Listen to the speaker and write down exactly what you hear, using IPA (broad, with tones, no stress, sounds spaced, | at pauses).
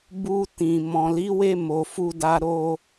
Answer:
b u˧ t ĩ˨ m ɔ̃˨ l i˨˦ w e˧ m o˨ f u˧ d a˧ ɾ o˧